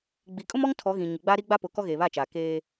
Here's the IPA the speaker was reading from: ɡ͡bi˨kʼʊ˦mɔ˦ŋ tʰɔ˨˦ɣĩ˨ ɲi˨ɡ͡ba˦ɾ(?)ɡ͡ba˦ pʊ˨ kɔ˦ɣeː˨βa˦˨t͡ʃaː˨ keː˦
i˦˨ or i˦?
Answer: i˦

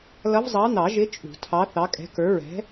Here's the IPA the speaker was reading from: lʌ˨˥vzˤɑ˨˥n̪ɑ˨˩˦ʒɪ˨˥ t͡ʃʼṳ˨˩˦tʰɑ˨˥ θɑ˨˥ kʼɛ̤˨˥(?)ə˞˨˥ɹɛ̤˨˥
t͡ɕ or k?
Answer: k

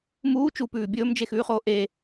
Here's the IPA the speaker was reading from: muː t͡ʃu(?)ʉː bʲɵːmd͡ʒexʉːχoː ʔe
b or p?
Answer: p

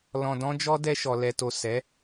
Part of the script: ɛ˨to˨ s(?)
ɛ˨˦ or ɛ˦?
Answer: ɛ˨˦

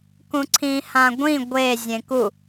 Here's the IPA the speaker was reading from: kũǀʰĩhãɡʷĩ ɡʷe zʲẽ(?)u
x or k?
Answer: k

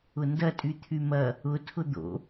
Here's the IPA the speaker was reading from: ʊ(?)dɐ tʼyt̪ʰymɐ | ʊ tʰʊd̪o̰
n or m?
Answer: n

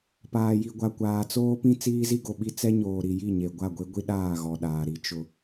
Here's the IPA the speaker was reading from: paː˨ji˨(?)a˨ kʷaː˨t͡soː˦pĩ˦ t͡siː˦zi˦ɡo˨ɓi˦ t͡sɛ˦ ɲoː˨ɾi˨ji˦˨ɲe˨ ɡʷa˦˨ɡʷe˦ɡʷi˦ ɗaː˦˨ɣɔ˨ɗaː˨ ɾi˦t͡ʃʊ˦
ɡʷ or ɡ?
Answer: ɡʷ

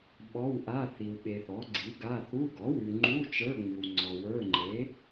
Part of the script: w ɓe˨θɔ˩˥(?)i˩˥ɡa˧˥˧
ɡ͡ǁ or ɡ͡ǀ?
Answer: ɡ͡ǀ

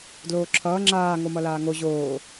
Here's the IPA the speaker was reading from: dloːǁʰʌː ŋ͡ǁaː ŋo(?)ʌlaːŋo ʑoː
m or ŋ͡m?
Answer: m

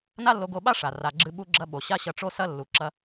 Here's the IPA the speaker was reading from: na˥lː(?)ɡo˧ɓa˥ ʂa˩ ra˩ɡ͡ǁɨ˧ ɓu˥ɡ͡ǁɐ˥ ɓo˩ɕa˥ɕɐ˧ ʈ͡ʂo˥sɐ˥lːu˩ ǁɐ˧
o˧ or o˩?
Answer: o˧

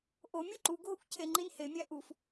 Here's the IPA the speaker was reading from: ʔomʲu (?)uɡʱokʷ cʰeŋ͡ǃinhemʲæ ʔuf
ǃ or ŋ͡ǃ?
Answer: ǃ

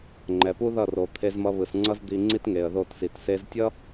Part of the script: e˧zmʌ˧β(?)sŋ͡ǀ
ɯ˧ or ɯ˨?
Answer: ɯ˨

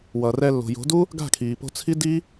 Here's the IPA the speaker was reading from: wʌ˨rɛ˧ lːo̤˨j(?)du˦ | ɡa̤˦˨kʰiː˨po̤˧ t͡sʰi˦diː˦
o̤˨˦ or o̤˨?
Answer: o̤˨˦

